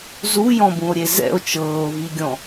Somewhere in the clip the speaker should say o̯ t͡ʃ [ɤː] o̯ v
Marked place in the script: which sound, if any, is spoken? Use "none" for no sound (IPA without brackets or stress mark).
ɤː